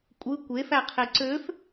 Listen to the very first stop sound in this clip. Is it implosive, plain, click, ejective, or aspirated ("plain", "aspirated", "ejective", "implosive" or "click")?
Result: ejective